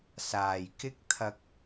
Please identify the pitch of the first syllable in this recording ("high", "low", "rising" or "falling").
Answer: low